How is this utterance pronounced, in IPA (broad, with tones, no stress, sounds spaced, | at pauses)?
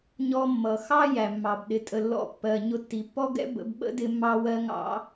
ɲ ɔ˧ mː ʌ˩ x ɑ˥ j æ˩ mː ɑ˩ b ɗ ɪ˩ tʼ ə˩ lː ɔ̰˧ pː ɜ˩ ɲ ʊ˧ tː i˩ pː ɔ˥ ɡ ɛ̰˥ b ə̰˧ b ɓ ə̰˥ d ɪ˧ mː ɑ˧ w ɜ˧ ŋ ɑ̰˧